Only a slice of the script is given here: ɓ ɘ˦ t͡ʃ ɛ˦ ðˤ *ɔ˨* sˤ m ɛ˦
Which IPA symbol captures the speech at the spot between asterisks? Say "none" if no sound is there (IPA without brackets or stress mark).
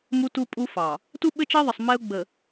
ə˨